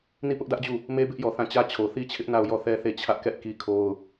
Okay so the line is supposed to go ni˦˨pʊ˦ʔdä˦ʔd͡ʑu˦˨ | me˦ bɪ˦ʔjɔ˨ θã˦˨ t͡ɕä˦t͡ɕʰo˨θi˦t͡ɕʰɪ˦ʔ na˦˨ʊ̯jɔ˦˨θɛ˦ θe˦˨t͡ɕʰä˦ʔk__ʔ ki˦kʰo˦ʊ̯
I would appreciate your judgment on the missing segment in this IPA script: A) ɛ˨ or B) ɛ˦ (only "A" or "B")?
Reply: B